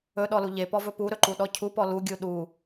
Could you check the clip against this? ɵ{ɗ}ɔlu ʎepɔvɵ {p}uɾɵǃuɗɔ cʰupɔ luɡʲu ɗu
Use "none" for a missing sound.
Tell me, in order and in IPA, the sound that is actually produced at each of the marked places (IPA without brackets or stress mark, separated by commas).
ɗ, p